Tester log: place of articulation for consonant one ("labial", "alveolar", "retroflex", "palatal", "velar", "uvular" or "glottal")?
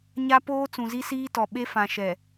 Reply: palatal